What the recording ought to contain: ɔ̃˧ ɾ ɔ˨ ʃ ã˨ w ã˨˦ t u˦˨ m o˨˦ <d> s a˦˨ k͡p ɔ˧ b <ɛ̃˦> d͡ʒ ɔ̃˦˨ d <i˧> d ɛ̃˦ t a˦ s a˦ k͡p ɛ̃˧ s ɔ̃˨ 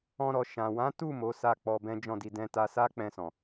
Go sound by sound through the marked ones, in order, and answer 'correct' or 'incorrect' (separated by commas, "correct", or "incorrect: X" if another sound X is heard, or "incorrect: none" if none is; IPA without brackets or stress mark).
incorrect: none, correct, correct